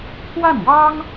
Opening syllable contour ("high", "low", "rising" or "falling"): falling